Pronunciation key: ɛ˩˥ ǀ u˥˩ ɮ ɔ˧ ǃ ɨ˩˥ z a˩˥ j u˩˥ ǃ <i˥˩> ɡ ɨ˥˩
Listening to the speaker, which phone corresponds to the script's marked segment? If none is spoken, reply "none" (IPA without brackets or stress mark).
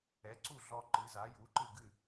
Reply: ɨ˥˩